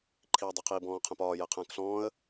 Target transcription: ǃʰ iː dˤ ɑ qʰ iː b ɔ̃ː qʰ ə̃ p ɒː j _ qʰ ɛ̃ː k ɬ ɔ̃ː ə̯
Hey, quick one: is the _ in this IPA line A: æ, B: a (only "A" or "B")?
A